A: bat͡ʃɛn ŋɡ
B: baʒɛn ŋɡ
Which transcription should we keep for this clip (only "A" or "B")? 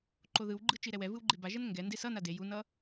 B